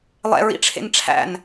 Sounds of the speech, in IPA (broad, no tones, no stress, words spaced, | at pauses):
lˠɛ̰ɹḭʈ͡ʂʰḛn ʈ͡ʂʰæ̰n